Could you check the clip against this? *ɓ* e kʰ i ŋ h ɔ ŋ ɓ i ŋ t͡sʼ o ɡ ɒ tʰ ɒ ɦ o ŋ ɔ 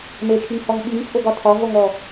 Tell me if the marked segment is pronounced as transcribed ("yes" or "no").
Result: no